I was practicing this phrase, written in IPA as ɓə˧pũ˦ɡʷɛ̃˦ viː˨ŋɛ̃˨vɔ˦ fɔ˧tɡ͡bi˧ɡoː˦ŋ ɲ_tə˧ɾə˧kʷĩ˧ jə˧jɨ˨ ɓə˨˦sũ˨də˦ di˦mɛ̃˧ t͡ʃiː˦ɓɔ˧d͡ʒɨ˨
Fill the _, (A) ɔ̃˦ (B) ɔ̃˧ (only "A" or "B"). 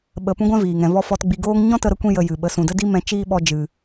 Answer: A